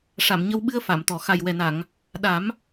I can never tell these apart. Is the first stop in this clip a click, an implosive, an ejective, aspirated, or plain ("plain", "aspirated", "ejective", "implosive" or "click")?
implosive